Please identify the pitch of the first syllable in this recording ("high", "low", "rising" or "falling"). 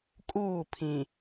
falling